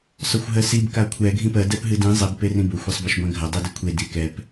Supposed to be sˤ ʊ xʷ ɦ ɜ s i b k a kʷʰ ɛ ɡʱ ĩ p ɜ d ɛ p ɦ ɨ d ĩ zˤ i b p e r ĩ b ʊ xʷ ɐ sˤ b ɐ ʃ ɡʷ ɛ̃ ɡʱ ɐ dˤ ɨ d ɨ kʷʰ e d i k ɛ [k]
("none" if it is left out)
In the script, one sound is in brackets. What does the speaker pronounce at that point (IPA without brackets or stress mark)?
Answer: p